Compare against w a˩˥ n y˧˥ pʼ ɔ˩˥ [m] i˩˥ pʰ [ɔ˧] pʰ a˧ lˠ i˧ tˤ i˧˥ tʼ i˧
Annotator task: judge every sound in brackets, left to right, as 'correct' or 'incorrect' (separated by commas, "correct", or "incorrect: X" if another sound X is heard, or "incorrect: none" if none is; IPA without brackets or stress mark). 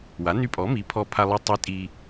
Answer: correct, correct